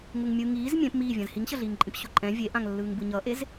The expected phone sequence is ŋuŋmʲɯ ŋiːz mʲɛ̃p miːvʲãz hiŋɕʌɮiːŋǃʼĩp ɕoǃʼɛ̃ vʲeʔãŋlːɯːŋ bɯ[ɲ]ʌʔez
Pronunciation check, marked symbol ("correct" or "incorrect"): correct